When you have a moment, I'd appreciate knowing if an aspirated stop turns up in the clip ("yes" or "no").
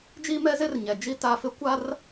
no